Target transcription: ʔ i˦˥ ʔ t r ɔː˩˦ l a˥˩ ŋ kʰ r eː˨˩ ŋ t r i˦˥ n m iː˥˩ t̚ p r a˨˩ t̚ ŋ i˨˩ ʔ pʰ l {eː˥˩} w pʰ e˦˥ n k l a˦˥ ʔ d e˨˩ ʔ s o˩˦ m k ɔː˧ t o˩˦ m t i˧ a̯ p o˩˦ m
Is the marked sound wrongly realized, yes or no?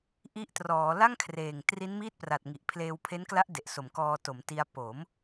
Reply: yes